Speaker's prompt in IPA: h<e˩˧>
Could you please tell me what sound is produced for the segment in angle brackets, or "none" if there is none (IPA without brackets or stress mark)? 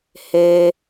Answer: e˧